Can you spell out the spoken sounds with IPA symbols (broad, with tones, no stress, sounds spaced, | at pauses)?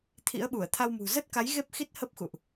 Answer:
t̪ʰ ḭ˧˥ ə̯ ɓ u˧˩ ə̯ t̪ʰ a˧ w m ṳ˨˩ z ə˦˥ t̚ k a˨˦ j ɣ e˦˥ p̚ x i˦˥ t̚ h ə˦˥ p̚ x ṵ˧˨ ʔ